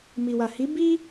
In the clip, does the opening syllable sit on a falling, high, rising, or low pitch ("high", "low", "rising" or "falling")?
low